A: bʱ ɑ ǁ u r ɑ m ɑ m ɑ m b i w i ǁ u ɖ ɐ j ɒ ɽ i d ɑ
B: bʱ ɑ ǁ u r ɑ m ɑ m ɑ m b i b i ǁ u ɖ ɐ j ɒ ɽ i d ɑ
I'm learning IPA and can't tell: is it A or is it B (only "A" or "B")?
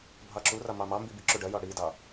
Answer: B